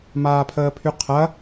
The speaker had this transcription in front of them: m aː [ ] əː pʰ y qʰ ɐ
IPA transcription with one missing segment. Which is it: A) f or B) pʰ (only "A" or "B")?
B